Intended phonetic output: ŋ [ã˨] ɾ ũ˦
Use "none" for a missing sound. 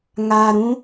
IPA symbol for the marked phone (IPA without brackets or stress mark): a˨